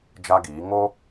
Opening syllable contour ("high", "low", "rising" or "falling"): high